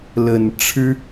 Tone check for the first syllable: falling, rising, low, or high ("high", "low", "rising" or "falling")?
low